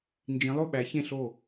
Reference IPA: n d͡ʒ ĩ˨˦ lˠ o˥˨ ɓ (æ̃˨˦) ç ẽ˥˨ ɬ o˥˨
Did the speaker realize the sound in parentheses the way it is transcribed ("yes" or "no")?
no